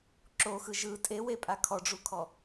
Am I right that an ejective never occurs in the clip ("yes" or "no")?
no